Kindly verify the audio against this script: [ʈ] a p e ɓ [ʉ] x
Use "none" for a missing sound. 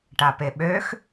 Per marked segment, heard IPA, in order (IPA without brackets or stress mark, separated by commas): ʈ, ø